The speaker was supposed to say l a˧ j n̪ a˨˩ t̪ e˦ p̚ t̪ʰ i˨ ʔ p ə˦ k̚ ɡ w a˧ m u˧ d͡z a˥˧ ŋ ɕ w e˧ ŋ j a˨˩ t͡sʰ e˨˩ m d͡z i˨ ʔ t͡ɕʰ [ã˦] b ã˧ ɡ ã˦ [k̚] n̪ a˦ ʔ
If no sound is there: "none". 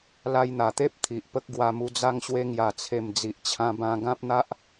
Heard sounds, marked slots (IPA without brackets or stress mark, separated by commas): ã˧, p̚